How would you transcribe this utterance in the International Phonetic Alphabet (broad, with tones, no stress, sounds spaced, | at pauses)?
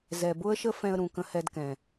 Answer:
z ɛ˨ b ʊ˦ ə̯ ʃ ə˦ f ɛ̃˦ ə̯ ɾ ũ˨ k ə̃˦ h ɛ˦ d k ɛ̃˨